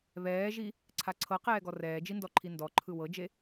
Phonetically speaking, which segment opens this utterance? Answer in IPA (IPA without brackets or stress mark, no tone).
β